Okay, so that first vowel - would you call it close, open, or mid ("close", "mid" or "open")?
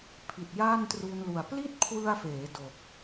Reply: close